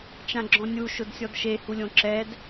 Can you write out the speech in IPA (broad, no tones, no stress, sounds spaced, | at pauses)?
t͡ʃ ã ɡ͡ǁ ɔ̃ nʲ u ʃ ʊ d sʲ ɔ d ʃ e h u lʲ õ ǁ ɛ d